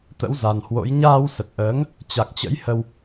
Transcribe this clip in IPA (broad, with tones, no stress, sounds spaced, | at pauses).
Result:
t̪ ə̰˧˥ w z a˨˩ n h w o̰˧˥ j ɲ aː˧ w s ə˨˩ t̚ ʔ əː˨˦ ŋ | t͡ɕ a˨˩ k̚ t͡ɕ ə̰˧˥ j h ə˧ w